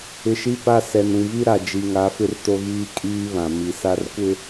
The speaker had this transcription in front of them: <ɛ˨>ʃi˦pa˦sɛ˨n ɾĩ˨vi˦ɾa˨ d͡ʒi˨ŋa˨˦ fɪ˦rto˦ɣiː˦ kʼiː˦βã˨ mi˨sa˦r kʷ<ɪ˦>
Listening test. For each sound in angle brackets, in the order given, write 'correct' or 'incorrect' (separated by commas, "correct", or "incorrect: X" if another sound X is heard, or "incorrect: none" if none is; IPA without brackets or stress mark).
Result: incorrect: ɪ˨, correct